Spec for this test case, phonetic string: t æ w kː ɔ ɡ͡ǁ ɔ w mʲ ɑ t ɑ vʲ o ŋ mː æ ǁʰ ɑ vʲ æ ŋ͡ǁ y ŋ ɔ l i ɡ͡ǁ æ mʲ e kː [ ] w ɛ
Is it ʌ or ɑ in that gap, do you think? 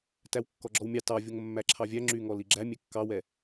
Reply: ɑ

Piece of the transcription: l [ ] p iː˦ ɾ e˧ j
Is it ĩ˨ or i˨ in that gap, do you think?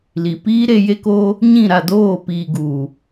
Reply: i˨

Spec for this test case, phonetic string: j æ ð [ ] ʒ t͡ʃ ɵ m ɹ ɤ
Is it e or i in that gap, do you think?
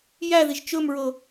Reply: i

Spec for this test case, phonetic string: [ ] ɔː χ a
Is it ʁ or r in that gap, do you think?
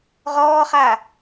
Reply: ʁ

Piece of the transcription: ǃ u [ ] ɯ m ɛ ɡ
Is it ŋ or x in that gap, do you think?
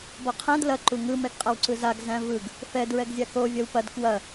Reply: ŋ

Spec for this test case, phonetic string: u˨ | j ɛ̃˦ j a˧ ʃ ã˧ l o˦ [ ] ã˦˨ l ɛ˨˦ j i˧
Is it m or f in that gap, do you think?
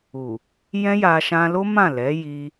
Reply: m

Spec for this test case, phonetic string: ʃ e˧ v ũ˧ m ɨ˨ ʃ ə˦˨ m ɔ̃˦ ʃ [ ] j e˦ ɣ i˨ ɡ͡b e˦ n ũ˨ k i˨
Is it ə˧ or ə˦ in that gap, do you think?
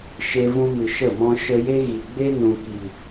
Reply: ə˧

